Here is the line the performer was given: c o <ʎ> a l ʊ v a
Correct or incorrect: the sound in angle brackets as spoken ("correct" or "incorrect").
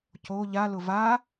correct